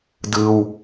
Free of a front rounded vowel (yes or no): yes